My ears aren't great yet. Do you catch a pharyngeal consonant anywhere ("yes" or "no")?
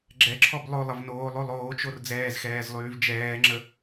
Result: no